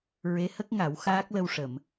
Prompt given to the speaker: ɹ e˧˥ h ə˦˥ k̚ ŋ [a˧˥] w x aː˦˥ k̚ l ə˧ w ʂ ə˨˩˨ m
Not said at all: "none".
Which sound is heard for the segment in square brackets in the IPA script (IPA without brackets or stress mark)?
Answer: a˨˩˦